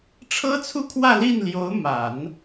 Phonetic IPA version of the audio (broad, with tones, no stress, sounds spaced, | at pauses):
ʈ͡ʂʰ ɤ˥ t͡sʰ u˥ kʰ w ä˥˧ l i˥˩ n l j o˧˥ ʊ̯ m a˨˩˦ n